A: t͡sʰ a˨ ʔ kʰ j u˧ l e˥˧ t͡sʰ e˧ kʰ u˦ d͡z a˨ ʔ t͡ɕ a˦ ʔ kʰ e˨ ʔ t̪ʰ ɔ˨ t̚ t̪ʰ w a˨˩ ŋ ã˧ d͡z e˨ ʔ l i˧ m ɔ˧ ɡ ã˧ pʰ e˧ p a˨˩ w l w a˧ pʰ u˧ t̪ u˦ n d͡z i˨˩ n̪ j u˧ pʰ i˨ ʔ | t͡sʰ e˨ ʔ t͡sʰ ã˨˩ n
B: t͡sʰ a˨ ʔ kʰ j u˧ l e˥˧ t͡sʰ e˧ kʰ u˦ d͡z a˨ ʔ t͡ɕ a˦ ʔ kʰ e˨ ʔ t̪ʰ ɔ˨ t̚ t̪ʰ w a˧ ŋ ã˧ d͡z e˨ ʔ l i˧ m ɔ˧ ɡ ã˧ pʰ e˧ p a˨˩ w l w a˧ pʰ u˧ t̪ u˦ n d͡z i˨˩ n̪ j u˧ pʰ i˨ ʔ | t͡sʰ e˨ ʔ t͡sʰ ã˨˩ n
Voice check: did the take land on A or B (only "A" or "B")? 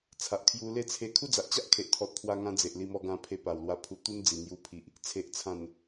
B